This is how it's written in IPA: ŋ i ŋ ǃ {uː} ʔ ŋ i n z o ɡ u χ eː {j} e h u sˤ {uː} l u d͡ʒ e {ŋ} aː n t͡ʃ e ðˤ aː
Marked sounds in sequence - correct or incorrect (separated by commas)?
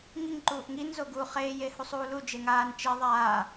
correct, correct, correct, correct